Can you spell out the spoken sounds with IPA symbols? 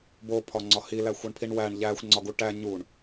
b o pʰ ɒ ŋ͡ǀ ɒ h i l æ xʷ ɒ ɳ pʰ i ɳ w æ ɳ ʎ æ xʷ ŋ͡ǀ ɒ ɡ u ʈ æ ɲ u ɳ

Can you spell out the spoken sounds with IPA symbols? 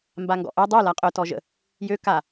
m b a ŋ ɡ ɔ̰ ʔ œ dˤ o l a qʼ œ t ɔ ʒ ə̰ | j ø k a

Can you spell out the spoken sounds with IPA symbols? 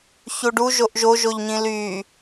ç u ɖ u ʒ o ʔ ʒ o ʒ o ʎ ɲ ĩ l y

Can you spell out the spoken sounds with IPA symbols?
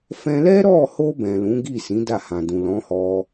f ɛ̃˧ l ɛ˦ ɾ ɔ˦˨ h o˧ b ɛ̃˨ l ũ˨˦ ɡ i˦˨ s ĩ˨˦ d a˦˨ h ã˨ d ũ˨ l ɔ̃˨˦ h ɔ˧

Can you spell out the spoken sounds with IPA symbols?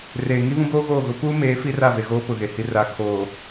r eː˨ ŋ i˦ β ũ˦ b oː˦ ɣ oː˦˨ ɣ ʊ˦ p uː˦ m eː˨˦ f i˦ r a˦˨ v e˨ ɣ oː˦ p ʊ˨ ɣ e˨ h i˨ r a˨ kʰ oː˨

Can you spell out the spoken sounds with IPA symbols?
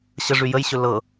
ɕ ə ʐ y j ə j ɕ ɵ l ɤ

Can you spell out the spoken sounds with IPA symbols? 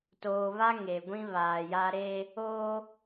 t oː˨ β a˦ ŋ e˨ ɡʷ ĩ˦ β aː˨ j a˦ ɾ eː˦ | oː˦

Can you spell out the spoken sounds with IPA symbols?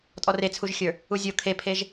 tʼ ɔ r e t͡sʰ u ʒ xʲ ə˞ | u zʲ o kʰ e pʰ e ʒ

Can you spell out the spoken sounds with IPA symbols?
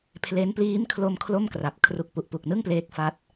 pʰ l e˦˥ n p l iː˦˥ m kʰ l o˧ m kʰ l o˥˩ m k r a˨˩ p̚ kʰ r u˨˩ k̚ p u˨˩ ʔ p u˨˩ k̚ n ɯ˥˩ ŋ p l eː˦˥ k̚ f a˦˥ t̚

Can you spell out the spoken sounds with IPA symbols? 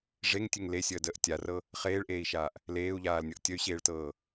ʐ e ŋ tʲ e ŋ l e sʲ əː d əː ʔ tʲ a r ɤ | χ eː ɭ ʔ eː i̯ ʃ aː ʔ | l eː u̯ ʎ aː l nʲ ɤ ʔ tʲ ə y̯ ɕ eː ɭ t ɤː

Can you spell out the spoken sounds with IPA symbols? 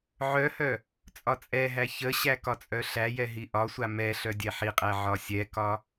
ʕ œ h œ | t͡sʼ ɒ t͡sʼ ɛ ɦ æ ç ə ɕ æ k ɒ t͡sʼ œ ɬ æ j ɛ ɦ i ʔ ɒ sʷ a m ɛ ɬ œ dʲ ɛ ħ i qʼ æ ʕ ɒ sʲ ɛ k ɒ

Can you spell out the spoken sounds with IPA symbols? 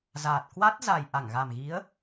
z aː˨˩ t̚ k w a˦˥ t̚ z a˨˩ j ʔ a˧˩ ŋ ɣ a˨˩ m ɣ i˨˦ ə̯

